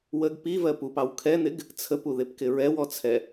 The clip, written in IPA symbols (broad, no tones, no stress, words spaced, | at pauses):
wəɡ pivɜ pupɑw kʰɛn̪ɪɡ | t͡sʰəpuðɪpkɪ ɹɛwɔt͡sʰɛ